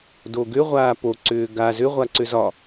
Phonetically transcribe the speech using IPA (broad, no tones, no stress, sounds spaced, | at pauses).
d o ɡ ʏ ʁʷ aː p o ǀ ʏː ɡ a z ʏ ʁʷ a ǀ ʏ z ɒ